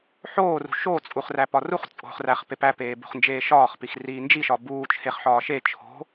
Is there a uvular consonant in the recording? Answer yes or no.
yes